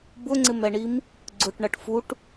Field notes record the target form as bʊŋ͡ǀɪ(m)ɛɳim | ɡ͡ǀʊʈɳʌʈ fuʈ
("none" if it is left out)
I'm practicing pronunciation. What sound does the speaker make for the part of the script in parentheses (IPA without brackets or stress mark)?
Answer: m